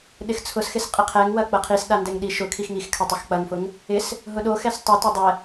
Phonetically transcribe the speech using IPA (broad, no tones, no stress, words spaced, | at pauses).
ɗɪxt͡sʰʊsxɪs qʼɪqʰɛŋwɐ k͡pɐqʰisɗa ndɛŋɗiʃʊkʰix ŋixkʰɐ tˤʊxk͡pɐŋfʊŋ | ɪs | ɦʊɗoxɛs tˤʊtɛ dˤɛ